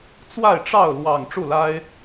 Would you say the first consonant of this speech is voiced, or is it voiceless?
voiceless